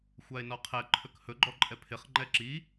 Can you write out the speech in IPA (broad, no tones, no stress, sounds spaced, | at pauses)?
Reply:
xʷ a e̯ n ɔ qʰ ɛ ǃʰ ɵ k h ɵ ɡ͡ǃ ɔ ǃʼ ɛ pʰ ɪ χ ŋ͡ǃ ɛ ǁ i